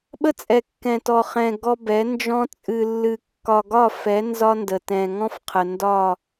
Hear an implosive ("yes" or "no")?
yes